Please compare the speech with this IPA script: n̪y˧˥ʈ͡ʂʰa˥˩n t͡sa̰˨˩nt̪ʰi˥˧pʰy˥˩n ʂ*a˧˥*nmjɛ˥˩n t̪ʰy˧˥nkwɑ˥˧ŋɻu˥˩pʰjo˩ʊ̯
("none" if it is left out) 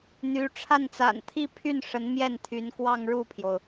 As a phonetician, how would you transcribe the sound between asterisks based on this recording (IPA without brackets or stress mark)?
ə˧˥